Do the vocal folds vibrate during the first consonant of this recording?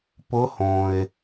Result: no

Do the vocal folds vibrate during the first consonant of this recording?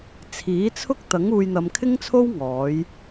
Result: no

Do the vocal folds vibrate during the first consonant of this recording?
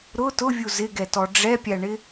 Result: yes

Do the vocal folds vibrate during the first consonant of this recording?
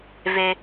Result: yes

